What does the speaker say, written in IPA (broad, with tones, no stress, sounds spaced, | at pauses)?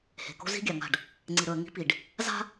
h e̤˨ k o̤˦ z i̤˦ ɡʲ a˨ ŋ a̤˦˨ ɖ | ŋ͡ǀ i˨ ɾ ɵ˨ ə̯ ŋ i̤˦ p i˨ ɖ | z a̤˦